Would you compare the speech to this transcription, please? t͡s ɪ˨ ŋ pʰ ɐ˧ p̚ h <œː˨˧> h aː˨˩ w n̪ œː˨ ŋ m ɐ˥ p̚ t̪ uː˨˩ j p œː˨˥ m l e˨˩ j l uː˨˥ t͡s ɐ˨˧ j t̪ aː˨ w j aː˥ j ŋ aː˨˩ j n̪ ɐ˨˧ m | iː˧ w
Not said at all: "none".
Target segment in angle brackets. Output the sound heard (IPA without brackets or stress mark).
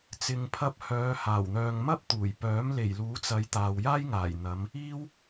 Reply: œː˨˧